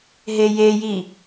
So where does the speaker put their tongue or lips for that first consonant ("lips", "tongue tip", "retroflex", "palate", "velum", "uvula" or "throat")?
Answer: throat